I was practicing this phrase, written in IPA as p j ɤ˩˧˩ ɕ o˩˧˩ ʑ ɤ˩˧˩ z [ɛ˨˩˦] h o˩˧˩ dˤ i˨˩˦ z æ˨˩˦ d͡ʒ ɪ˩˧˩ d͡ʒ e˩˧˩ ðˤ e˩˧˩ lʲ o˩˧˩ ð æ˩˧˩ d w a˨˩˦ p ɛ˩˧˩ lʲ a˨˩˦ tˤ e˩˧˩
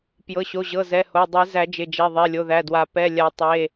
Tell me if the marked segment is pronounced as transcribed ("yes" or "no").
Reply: no